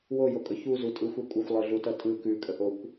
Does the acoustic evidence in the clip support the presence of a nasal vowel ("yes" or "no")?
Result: no